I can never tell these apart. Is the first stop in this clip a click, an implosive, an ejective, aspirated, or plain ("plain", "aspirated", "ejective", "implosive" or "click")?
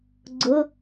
click